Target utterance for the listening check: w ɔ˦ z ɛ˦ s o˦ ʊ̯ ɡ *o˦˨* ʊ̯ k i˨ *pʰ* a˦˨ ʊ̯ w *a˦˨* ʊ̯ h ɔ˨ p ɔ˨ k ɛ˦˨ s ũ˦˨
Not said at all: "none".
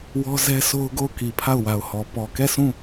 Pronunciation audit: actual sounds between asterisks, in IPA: o˦˨, pʰ, a˨

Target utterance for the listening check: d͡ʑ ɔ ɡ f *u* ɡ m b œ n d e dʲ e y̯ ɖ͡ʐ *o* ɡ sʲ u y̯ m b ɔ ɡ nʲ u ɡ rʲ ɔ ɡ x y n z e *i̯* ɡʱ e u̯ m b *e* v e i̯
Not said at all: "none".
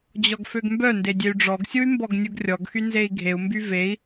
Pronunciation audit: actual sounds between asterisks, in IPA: ø, ɔ, i̯, y

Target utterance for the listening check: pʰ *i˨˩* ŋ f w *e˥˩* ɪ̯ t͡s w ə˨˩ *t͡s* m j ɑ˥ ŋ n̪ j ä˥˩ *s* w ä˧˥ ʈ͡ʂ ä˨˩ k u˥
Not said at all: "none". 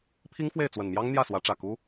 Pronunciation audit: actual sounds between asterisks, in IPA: i˥, e˥˩, n, s

